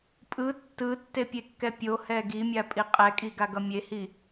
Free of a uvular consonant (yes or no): no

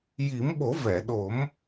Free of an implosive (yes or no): no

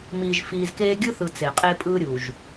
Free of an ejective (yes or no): no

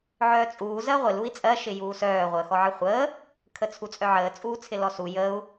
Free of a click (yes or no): yes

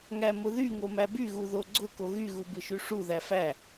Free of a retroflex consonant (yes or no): no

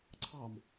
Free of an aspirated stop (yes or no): no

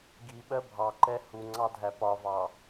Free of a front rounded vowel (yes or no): yes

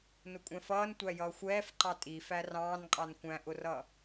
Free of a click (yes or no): no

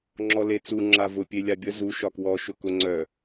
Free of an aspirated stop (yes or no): yes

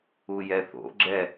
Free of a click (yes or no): no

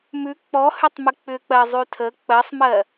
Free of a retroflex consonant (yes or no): yes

